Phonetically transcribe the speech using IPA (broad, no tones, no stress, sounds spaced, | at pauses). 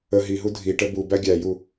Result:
ə ɦ i ɦ u dʱ i ʈ ə b u b æ ɡʲ æ j u